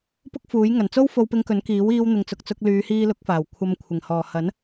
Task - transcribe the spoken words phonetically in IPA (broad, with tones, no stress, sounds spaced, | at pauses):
p ʊ˥ k̚ f uː˨˥ j ŋ ɐ˨˩ n t͡s o˥ w f o˧ w p ɪ˧ ŋ k ɵ˨˥ n k iː˨˥ w iː˧ w n̪ ɪ˨ ŋ t͡s ʊ˨ k̚ t͡s ʊ˧ k̚ l yː˨˧ h iː˧ l ʊ˨˥ k̚ f aː˨˩ w kʷʰ ɐ˧ m kʷʰ ɪ˨˩ ŋ h ɔː˨˩ h ɐ˨˥ n